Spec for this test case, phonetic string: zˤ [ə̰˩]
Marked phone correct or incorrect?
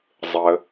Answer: incorrect